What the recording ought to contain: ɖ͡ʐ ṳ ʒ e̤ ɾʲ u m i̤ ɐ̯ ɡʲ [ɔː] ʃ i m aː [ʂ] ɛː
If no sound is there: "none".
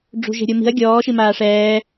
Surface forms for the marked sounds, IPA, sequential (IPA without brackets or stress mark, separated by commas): ɔː, ʂ